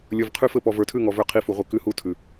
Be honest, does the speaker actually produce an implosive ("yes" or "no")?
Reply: no